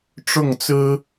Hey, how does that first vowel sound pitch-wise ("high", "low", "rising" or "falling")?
falling